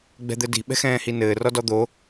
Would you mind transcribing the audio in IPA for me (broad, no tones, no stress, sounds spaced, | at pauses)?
ɡ͡b ɛ̤ d̪ ɘ d i̤ ɓ ɛ̤ x ɛ̃ː h i n ɘː r ɔ d ɔ d̪ o